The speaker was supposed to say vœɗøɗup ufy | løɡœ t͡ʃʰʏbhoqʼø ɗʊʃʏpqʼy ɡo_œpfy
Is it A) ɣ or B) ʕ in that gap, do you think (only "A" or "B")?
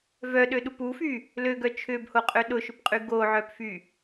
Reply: B